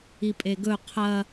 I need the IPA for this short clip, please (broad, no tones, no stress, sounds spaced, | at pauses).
i pʼ e ɡ ɵ qʰ ɐ